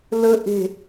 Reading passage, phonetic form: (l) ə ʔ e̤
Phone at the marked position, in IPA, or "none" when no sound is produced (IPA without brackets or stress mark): l